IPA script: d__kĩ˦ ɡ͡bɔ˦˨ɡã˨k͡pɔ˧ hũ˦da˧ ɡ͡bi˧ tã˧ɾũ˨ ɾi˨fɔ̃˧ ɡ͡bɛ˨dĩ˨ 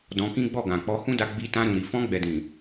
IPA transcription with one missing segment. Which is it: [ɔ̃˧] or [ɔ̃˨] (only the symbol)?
ɔ̃˧